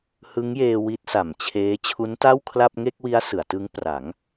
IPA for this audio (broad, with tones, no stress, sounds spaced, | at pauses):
h ɯ˦˥ ŋ j eː˧ w i˦˥ t̚ s a˨˩ m t͡ɕʰ eː˦˥ t͡ɕʰ u˦˥ n t a˥˩ w kʰ l a˥˩ p̚ ŋ e˥˩ k̚ w i˦˥ a̯ s ɯ˩˦ a̯ t ɯ˦˥ ŋ p r a˩˦ ŋ